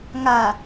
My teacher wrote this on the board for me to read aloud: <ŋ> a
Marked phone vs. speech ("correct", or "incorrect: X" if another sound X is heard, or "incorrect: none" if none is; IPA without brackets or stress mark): correct